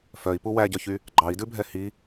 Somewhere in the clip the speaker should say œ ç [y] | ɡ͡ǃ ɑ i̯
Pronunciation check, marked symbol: correct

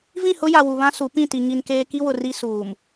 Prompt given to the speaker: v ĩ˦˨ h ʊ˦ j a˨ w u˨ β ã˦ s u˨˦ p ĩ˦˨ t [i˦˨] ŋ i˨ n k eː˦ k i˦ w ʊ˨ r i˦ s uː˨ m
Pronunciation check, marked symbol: incorrect: i˨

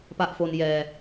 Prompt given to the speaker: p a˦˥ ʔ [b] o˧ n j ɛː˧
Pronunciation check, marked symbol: incorrect: f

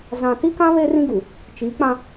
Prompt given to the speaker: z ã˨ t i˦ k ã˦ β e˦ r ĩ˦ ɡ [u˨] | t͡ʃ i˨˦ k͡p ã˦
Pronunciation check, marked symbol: correct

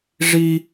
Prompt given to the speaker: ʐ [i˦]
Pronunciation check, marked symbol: correct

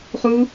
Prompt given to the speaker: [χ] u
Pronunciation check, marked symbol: correct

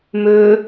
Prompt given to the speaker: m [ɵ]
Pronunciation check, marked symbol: correct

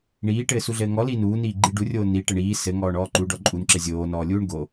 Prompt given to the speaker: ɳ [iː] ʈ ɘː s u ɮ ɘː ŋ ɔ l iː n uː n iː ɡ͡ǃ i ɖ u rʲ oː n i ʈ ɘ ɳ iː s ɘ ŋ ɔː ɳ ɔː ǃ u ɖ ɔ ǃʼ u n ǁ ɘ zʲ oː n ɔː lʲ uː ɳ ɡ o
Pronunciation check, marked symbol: correct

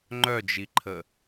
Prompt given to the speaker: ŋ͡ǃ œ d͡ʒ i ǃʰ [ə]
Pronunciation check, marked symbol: correct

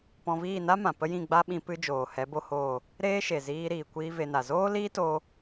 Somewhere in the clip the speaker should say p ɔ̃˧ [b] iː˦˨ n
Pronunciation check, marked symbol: incorrect: v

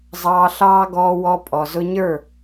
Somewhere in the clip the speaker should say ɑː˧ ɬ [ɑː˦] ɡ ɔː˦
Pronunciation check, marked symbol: correct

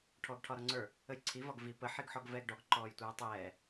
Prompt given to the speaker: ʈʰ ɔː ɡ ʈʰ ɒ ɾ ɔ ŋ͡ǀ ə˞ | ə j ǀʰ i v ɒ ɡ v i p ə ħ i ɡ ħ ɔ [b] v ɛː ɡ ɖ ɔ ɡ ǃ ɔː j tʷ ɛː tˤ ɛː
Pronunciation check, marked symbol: incorrect: ɡ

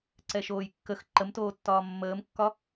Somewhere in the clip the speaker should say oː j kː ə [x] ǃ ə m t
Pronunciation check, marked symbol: correct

